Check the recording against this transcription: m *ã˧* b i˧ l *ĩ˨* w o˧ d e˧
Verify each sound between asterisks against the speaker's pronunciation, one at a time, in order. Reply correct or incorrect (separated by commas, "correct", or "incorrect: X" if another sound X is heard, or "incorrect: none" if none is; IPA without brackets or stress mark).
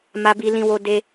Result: incorrect: a˧, incorrect: ĩ˧